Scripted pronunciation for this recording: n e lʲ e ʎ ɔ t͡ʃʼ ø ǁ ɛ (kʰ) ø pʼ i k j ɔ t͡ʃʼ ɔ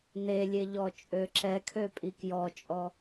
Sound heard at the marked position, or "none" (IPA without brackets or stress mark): kʰ